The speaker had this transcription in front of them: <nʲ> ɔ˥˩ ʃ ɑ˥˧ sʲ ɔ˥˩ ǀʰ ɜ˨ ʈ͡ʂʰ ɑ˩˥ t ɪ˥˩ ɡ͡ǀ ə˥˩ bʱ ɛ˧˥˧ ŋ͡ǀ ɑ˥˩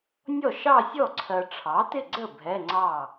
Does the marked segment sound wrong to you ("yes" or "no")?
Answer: no